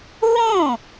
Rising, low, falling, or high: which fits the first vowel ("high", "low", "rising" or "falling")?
falling